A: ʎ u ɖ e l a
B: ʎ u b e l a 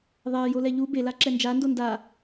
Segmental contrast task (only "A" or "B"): B